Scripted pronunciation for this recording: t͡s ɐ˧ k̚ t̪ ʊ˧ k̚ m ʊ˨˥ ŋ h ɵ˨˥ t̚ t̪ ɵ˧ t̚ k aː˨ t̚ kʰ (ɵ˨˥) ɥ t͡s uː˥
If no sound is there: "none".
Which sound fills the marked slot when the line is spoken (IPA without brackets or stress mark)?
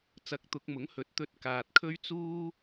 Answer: ɵ˥